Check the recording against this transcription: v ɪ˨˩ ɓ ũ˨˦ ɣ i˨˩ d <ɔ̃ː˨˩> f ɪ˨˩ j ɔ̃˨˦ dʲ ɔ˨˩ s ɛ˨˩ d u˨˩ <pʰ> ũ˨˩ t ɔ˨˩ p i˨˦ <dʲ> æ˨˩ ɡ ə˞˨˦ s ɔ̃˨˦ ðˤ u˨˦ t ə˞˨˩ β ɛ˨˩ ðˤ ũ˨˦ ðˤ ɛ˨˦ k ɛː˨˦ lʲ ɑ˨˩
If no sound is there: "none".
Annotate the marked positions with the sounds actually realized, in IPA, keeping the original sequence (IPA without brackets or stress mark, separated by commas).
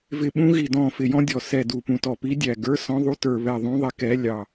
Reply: ɔ̃ː˨˩, p, dʲ